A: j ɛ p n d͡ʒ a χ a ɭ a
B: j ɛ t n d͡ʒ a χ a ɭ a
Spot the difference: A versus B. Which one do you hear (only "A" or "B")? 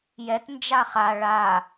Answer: B